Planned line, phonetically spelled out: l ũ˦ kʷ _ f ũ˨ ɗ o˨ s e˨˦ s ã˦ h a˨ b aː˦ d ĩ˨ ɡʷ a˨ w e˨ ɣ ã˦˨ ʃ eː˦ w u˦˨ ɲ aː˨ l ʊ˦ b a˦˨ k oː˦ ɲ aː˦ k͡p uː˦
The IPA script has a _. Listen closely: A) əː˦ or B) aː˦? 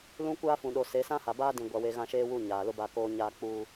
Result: B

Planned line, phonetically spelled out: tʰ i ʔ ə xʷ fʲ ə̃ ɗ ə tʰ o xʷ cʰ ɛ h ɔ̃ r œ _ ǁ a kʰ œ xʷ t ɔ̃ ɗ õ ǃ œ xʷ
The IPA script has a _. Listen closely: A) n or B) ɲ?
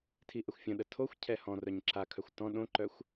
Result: B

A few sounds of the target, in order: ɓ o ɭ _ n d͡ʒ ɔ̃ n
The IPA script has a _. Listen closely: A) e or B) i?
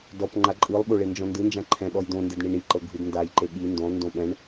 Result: A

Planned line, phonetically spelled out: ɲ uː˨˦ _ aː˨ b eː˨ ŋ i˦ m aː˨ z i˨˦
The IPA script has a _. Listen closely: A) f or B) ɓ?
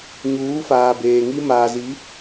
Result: A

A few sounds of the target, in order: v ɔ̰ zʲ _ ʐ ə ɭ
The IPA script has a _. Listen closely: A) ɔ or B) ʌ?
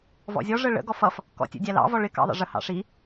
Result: A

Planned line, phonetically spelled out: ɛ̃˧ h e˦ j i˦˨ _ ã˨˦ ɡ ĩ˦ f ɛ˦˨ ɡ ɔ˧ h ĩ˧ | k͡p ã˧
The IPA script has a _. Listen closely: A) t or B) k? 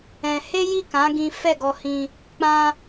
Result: B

